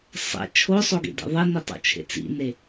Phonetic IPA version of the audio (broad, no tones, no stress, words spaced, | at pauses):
sˤḛ t͡ʃʰosˤoɡḛdḛ ðˤenitˤo̰ t͡ʃʰḛt͡sḭne